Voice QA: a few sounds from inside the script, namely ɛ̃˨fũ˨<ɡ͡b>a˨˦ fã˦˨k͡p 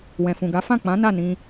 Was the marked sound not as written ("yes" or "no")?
yes